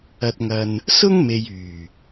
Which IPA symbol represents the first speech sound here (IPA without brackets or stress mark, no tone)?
ɐ